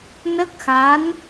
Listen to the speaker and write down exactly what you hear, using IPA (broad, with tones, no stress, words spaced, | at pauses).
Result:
nə˦˥k̚xa˧˥n